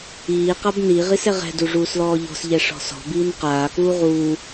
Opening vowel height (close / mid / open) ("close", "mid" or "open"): close